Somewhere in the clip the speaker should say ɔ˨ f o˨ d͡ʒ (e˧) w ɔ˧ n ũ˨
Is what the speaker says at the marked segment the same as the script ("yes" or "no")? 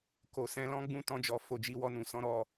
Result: no